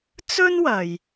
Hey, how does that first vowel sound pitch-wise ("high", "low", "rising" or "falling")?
high